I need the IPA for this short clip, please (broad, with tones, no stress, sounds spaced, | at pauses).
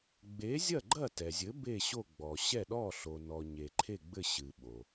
ɡ͡b e˩˥ zʲ ɐ˥˩ ɡ͡ǃ ɐ˥˩ t ɛ˩ zʲ ɘ˩˥ b e˥˩ ɕ o˥˩ ɡ͡b ɔ˩ ɕ ɛ˥˩ ɗ ɔ˥˩ ɬ o˩ n ɔ˩ ɲ e˩ ǃʰ e˥˩ ɡ͡b ɘ˥˩ ɕ ɨ˩ ɓ o˩